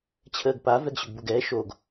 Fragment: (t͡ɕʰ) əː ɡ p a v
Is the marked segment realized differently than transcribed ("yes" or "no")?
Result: no